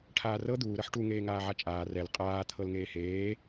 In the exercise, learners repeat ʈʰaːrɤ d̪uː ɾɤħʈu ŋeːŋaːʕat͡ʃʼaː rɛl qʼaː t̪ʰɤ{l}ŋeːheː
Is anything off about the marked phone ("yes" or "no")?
no